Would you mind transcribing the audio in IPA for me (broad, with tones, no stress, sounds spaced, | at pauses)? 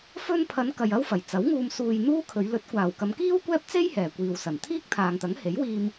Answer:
f ɵ˧ n pʰ ɐ˨˧ n k ɐ˧ j ɐ˥ w f ɐ˨˩ j t͡s ɐ˨˥ w ŋ uː˧ m s uː˧ j n̪ uː˥ kʰ ɵ˨˧ ɥ l ɵ˨˥ t̚ kʷ aː˨˩ w k ɐ˨˧ m k iː˥ w kʷ ɛː˥ p̚ t͡s e˥ j h ɛː˨˩ kʷ iː˨ w s ɐ˨˩ n t̪ʰ iː˥ k̚ t̪ʰ aː˨ ŋ t̪ ɐ˨˥ ŋ h e˨˥ j w iː˧ m